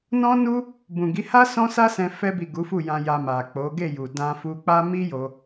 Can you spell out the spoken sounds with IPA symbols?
n ɔ̃˦ n u˦ | b ũ˨ ɡ i˨˦ h a˦ s ɔ̃˦ s a˦ s ɛ̃˧ f ɛ˧ b i˨ ɡ u˨˦ f u˦˨ j ã˧ j a˧ m a˨ k͡p o˨˦ ɡ e˦˨ j u˨ d ã˧ f u˧ k͡p a˦ m i˦ j o˧

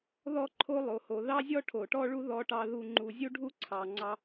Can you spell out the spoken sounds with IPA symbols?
ð ɔ˥ ǃʰ o˥ lˠ o˩ h o˩ ð ɑ˥ zʲ ɔ˥ ʈʰ o˩ ʈ ɔ˥ ɭ u˥ ð ɔ˥ ʈ ɑ˥ ð u˥ ŋ͡ǃ u˧ zʲ u˥ ɖʱ u˥ ǀʰ ɑ˧ ŋ͡ǀ ɑ˥

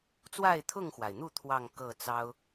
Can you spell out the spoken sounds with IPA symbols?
t͡s w a˥˨ ɪ̯ t̪ʰ ʊ˥˨ ŋ x w a˩ ɪ̯ n̪ u˥˨ t̪ʰ w ɑ˥˨ ŋ k ɤ˥˨ t͡s ɑ˦ ʊ̯

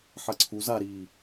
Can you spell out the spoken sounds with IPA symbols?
ħ ɐ ǀʰ u z a ɾ iː

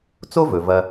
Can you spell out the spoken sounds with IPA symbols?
t͡s o˥ v ɵ˩ v ɐ˨

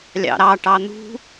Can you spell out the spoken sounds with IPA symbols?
lʲ ɑ̰ ɾ ɑ ʈ ɑ n̪ ṳ

